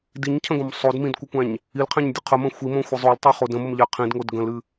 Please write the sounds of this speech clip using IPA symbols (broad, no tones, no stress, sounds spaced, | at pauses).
d i ɲ cʰ ə̃ ɡ õ m sˤ o d m ĩ d kʷ ə kʷ æ̃ ɲ | i l qʰ æ̃ ɲ dʲ ə qʰ ə m ə̃ xʷ i m õ xʷ ə zˤ o l tˤ o χ o d ə̃ m ə m ʎ æ qʰ ĩ d ŋ o d ɡ ə̃ l ɨ